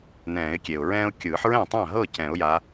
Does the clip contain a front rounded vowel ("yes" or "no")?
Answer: no